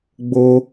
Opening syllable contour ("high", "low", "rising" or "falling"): high